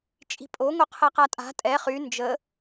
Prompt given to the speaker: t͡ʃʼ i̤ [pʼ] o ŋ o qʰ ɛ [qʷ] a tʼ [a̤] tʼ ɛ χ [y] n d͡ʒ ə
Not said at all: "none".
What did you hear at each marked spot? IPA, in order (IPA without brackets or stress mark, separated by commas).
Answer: pʼ, q, a̤, y